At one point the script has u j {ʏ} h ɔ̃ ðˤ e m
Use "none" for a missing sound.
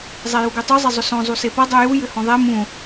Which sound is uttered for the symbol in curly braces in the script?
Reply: ʏ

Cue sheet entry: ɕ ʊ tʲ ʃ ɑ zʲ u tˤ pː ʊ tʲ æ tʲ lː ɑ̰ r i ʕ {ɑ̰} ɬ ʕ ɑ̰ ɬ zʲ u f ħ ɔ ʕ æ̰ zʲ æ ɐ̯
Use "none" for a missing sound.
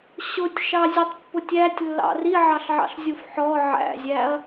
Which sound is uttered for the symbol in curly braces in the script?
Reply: ɑ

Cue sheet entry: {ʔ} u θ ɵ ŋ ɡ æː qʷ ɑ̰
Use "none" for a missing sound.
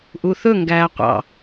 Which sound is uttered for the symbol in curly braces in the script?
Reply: ʔ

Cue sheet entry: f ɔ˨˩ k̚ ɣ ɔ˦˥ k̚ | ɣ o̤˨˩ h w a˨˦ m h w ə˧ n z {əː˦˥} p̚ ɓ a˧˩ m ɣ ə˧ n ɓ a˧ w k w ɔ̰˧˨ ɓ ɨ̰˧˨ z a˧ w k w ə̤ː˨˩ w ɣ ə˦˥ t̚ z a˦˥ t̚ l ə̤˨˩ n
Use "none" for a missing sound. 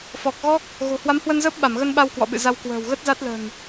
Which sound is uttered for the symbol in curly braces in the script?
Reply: əː˦˥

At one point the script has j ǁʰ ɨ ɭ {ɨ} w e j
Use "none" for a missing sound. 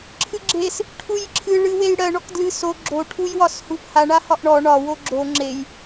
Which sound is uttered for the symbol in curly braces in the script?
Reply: ɨ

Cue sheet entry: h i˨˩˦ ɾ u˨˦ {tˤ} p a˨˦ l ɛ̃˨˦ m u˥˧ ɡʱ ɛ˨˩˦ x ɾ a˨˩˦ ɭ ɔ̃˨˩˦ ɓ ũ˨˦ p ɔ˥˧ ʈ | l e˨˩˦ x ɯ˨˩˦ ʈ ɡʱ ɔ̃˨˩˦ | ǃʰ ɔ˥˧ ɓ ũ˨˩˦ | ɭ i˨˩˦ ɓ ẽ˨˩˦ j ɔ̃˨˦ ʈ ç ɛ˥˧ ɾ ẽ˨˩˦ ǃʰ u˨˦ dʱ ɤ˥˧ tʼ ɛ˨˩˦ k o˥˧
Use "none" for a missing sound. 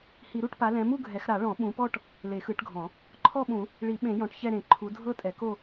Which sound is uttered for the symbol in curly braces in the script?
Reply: ʈ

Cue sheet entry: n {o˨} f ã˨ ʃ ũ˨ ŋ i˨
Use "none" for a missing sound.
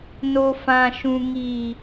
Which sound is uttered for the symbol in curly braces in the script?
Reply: o˨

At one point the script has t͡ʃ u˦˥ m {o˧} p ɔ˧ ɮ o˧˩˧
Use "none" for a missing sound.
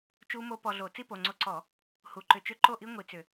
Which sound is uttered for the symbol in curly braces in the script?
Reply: o˦˥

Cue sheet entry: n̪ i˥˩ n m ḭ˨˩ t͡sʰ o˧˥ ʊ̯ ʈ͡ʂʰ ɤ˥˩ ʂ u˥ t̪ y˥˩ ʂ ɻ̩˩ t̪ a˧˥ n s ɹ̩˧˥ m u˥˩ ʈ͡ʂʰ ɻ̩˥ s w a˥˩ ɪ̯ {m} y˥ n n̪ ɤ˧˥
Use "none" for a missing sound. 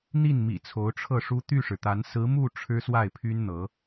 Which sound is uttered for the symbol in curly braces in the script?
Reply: pʰ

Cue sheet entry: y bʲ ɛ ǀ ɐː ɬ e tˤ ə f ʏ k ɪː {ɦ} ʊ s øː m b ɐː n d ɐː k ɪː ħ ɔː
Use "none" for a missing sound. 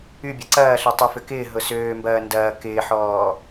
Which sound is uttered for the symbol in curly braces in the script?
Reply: ɦ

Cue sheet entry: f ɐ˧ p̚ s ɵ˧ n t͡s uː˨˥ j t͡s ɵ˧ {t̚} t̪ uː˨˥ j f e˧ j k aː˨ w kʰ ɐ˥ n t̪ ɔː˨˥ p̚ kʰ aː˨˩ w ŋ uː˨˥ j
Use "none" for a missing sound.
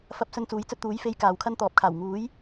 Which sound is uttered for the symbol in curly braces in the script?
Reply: t̚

